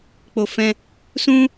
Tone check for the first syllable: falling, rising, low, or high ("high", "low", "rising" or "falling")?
low